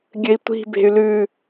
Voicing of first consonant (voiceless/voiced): voiced